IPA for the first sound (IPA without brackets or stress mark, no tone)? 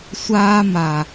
sʷ